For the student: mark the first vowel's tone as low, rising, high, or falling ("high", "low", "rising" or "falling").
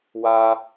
high